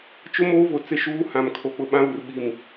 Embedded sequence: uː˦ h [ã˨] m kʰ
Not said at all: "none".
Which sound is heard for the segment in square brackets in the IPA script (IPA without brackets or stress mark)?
ã˨